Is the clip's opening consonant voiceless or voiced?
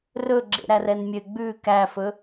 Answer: voiced